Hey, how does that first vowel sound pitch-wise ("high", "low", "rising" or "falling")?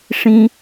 high